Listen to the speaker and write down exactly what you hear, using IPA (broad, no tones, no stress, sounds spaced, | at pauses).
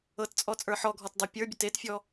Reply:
ɤ t t͡sʼ ɔ t͡sʼ ə˞ ħ ɔ ɡʱ ɔ t dˤ ə pʲ ə˞ bʲ ə t e t fʲ ɔ